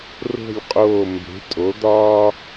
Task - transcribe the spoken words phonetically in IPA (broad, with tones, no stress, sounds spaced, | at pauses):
r o̤˦˨ lʲ qʼ oː˦˨ m b e̤˨˥ tʼ o˨˥ d̪ ɒː˦